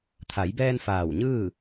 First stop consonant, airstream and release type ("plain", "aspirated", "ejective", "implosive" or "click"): aspirated